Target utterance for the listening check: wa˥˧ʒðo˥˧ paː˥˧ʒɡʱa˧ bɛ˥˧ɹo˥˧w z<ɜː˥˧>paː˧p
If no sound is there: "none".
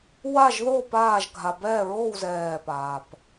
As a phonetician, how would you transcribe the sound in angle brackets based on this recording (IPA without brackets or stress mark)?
ɛː˥˧